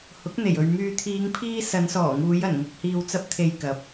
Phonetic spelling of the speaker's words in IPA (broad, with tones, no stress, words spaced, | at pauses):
hʊ˨˥k̚n̪e˨˩jɵ˨ɥ myː˨t̪ʰiː˨˧ŋpʰiː˧ sɐ˨˧nsɔː˨˩ŋuː˨˧j ɐ˨˩nŋʊ˨k̚hiː˨w t͡sɐ˧p̚t̪ʰe˨jkɐ˨˥p̚